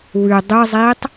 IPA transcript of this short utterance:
w ʉ dˤ ɨ zˤ i tˤ

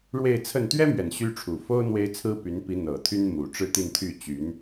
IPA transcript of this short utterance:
ɻ w e˥˧ ɪ̯ t͡sʰ ə˥˩ n t̪ ɥ ɛ˥ m ɥ ɛ˨˩ n ɕ y˥ ʈ͡ʂʰ u˨˩ f o˥ ʊ̯ n̪ w e˥ ɪ̯ t͡sʰ ɹ̩˥ p y˧˥ n p i˧˥ n̪ ɤ˨˩ t̪ʰ y˥ n m u˨˩ ʈ͡ʂ ɻ̩˥˧ t̪ i˥˧ n t̪ʰ y˥˩ t͡ɕ y˧˥ n

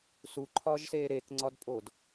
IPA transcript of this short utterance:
s u ǃʰ ɒː ʒ s eː ɾ e k ŋ͡ǀ ɒ d pʼ o d

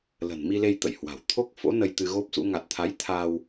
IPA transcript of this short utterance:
l ə̤˨˩ n m i˧ l e˧ j t̪ ə̰˧˨ j h w a̤˨˩ w t̪ʰ o˦˥ k̚ f o̰˧˥ n ə˧ j t̪ ɨ˧ ɣ o˦˥ p̚ s ṵ˧˥ ŋ a˨˩ t̚ t̪ʰ a˨˦ j t̪ʰ a˧ w

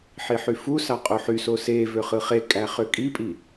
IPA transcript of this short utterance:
ħ i ħ y f u s ɑ qʼ o ħ y s o s e v ø χ ɯ χ e kʼ æ χ ø kʼ i pʼ i

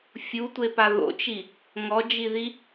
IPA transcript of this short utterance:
fʲ u tʷ e p a ð o̰ t͡ʃ i | ŋ ɔ d͡ʒ i ð i

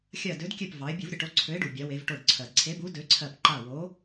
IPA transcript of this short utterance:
xʲ ɜ˧˩ d ø˨˥ d kʲ ø˧˩ p v ɑ˩˧ ɪ̯ bʲ u˧˩˧ v ɾʲ ə˩ ʈ o˨˥ ǀʰ ø˨˥ ɪ̯ ɖ u˩ bʲ a˩˧ w e˩˧ v ʈ o˧˩ ɖ ǀʰ ɜ˩ d ǀʰ e˨˥ b u˨˥ d ø˨˥ ǀʰ ɜ˧˩ p ǃ a˧˩ w o˨˥

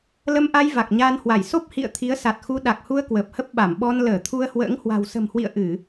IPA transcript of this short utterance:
l ə˧ m ʔ a˧ j v a˨˩ k̚ ɲ aː˧ n h w a˧˩ j s o˦˥ p̚ h ḭ˧˨ ə̯ t̪ʰ i˨˦ ə̯ s a˨˩ t̚ x u˧ ɗ a˨˩ k̚ h u˧ ə̯ k w əː˨˩ p̚ h ə˦˥ p̚ ɓ a˧˩ m ɓ ɔ˧ n l əː˧˩ t̪ʰ u˧ ə̯ h w ə̰ː˧˥ ŋ h w a̤˨˩ w s ə̤˨˩ m h w ḭ˧˨ ə̯ ʔ ɨ˧˩˨

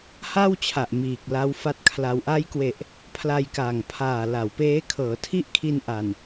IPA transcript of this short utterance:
h a˥˩ w t͡ɕʰ a˨˩ ʔ m iː˨˩ k̚ l a˦˥ w f a˦˥ t̚ kʰ l a˧ w ʔ a˦˥ j k w e˨˩ ʔ | pʰ l a˧ j k aː˨˩ ŋ pʰ aː˨˩ l a˩˦ w p eː˦˥ kʰ ɤː˩˦ tʰ i˥˩ ʔ kʰ i˧ n ʔ a˨˩ n

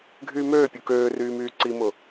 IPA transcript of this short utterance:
ɡʱ yː m øː pʲ u k øː r yː m yː ǀ i m ʊ

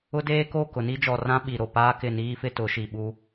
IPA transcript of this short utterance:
ʊ˦ d eː˦ k o˦˨ k ʊ˨ n i˦ d͡ʒ ɔ˨ r ã˦ ɓ i˨ ɾ o˨ p aː˦ k ɪ˦˨ n iː˦ f ɪ˦ t ʊ˨˦ ʃ i˨ ɓ u˦

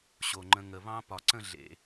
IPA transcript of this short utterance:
ɕ o˨˩ ŋ͡ǃ ə̃˧ ŋ ə˨˩ β ɑ̃˦˥ p ɒ˨˩ ǀ ə̃˥˧ ɮ ḛ˨˩

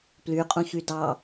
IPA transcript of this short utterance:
p l y qʼ ũ ç y d ɑ

